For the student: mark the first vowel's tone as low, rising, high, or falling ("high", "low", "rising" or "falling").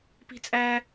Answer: high